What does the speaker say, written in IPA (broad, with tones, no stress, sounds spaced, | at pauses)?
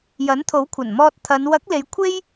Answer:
j ɐ˨˥ n t̪ʰ o˨˥ w kʷʰ ɐ˨˩ n m ɔː˧ t̚ t̪ʰ ɐ˨˧ n w ɐ˨˥ k̚ l e˨˧ j kʷʰ e˥ j